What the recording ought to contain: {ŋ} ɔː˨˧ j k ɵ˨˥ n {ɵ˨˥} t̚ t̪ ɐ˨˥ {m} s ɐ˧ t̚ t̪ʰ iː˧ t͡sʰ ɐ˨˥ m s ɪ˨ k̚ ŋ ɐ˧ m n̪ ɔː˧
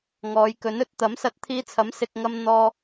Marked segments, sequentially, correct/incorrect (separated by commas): correct, correct, correct